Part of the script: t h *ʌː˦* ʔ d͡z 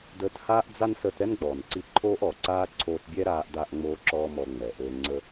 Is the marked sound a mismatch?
yes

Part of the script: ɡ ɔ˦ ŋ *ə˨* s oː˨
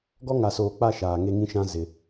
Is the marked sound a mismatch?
yes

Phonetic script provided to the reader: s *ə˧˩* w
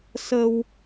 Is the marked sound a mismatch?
yes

